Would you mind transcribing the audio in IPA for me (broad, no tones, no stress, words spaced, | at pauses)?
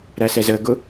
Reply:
ɾæsɛzəːɡʊ